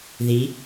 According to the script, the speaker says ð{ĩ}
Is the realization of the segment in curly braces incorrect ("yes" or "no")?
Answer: yes